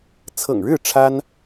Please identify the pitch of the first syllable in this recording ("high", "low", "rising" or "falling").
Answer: low